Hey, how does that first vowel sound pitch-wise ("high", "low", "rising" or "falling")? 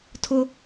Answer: high